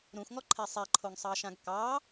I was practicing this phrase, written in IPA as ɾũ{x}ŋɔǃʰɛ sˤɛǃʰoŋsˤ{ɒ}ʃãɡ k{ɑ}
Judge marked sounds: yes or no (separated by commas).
yes, no, yes